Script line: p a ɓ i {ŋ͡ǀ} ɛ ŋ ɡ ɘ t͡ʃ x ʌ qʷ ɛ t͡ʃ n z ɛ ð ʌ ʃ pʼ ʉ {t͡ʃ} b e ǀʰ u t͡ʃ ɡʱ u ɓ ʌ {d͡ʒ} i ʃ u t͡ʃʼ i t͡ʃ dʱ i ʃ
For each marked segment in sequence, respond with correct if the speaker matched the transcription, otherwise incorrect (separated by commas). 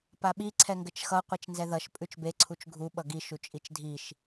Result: incorrect, correct, incorrect